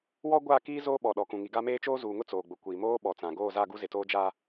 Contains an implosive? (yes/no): yes